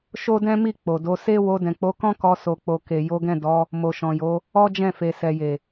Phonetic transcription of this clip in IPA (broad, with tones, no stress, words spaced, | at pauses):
ʃo˦dɛ̃˦mi˦˨ k͡po˨do˨˦ se˦ wo˧dɛ̃˨k͡po˨˦kɔ̃˦ kɔ˧so˨k͡po˨ ke˨ jo˨˦ɡɛ̃˦˨ dɔ˨˦ | mo˨ʃɔ̃˨jo˨˦ | ɔ˦d͡ʒɛ̃˦˨fe˨ sɛ˨je˨